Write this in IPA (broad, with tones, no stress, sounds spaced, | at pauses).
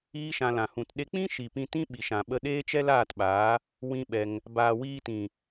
iː˦ ʃ ã˧ l ã˨ h ũ˨ t ɗ e˧ k͡p ĩ˦ ʃ i˨ p ĩ˧ t ĩ˦ ɓ i˨ ʃ ã˨ ɓ ə˧ ɗ eː˦ t͡ʃ ɛ˦ l aː˦˨ t ɓ aː˨˦ | w ĩ˦ ɓ ɛ˧ ŋ | b aː˨ w iː˧ t ĩ˨